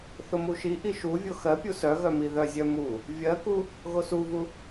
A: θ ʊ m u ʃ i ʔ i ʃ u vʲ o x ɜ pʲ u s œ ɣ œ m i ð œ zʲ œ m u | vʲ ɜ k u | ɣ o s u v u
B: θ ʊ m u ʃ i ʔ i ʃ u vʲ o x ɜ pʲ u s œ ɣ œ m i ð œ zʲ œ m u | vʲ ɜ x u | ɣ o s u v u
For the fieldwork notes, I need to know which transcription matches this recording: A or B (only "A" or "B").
A